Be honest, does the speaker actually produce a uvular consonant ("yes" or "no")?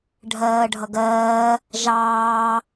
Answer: no